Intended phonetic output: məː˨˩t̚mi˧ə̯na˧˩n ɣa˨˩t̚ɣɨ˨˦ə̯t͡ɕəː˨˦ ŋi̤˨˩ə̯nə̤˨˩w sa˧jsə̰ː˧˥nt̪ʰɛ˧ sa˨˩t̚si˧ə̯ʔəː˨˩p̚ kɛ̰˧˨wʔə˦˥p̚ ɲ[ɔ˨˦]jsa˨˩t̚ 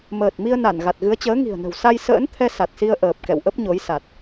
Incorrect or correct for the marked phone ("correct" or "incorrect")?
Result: incorrect